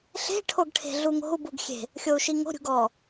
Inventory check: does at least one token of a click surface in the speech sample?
no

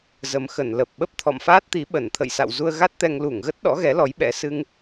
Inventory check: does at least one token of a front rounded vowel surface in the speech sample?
no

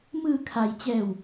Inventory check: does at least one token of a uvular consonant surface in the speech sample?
no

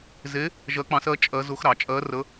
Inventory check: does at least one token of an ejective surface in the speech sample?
yes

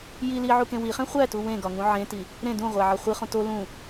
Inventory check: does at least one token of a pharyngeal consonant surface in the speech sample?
yes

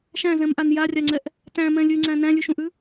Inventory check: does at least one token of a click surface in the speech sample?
yes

